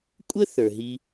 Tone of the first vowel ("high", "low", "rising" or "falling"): high